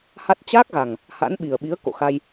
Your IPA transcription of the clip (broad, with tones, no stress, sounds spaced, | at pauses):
h a˦˥ t̚ t͡ɕ aː˦˥ k̚ ɣ a˨˩ ŋ | h a̰˧˥ n ɓ i˨˩ ə̯ ɓ i˨˦ ə̯ k o̰˧˨ x a˧ j